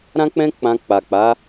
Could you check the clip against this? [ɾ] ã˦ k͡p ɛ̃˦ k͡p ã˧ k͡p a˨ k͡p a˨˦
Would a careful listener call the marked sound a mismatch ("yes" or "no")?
no